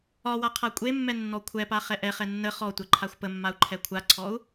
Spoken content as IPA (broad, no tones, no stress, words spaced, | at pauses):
ɒwa qʰakʷʼemːɛ nːɔkʷʰɛpa χɛʔɛχɛ nːə χɔ tʷɛǃʰaxʷpə mːau̯ǃʰɛkʷʰaǀʰɔu̯